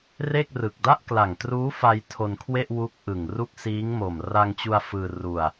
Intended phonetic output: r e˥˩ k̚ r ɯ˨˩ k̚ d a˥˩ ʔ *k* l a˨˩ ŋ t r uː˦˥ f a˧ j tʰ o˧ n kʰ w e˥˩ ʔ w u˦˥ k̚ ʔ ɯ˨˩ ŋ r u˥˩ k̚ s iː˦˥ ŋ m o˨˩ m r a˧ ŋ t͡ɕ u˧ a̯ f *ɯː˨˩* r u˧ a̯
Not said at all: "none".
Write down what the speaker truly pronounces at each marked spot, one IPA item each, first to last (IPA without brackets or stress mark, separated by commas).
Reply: k, ɯː˧